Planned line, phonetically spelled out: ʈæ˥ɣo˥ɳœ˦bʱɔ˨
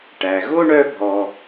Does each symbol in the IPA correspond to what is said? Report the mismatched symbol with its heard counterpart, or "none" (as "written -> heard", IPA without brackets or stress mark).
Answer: æ˥ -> æ˩